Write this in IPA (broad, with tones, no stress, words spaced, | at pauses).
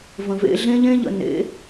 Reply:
və̃˨vḛ˧ɮẽ˦ʎẽ˦ ʎə̰˨ nḛ˨˦